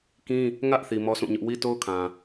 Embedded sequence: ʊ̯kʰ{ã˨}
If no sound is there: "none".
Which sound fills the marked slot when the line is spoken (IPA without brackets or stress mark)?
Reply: ã˨